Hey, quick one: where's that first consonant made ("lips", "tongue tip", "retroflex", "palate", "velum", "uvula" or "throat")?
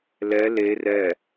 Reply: tongue tip